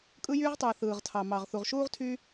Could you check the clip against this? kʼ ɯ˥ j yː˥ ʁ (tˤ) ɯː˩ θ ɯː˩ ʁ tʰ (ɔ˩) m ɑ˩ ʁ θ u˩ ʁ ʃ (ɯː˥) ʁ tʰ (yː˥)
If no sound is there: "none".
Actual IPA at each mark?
tˤ, ɑ˩, uː˥, yː˥

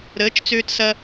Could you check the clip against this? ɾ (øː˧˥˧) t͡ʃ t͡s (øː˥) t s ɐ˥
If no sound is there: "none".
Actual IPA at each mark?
əː˧˥˧, øː˥

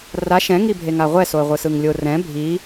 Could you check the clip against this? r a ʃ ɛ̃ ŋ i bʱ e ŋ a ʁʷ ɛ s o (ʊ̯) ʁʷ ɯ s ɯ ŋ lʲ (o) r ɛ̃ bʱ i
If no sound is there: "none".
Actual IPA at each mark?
ə̯, o

